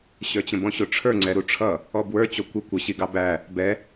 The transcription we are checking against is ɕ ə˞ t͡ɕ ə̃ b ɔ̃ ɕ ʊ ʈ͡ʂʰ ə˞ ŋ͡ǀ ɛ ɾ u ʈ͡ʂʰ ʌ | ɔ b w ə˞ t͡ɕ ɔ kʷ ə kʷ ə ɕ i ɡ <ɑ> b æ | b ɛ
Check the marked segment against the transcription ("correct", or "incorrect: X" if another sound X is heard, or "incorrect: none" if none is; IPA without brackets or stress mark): correct